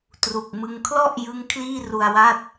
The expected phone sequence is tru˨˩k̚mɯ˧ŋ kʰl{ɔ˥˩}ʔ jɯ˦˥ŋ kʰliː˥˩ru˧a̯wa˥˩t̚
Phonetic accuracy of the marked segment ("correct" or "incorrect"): correct